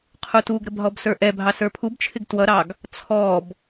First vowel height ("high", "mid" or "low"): high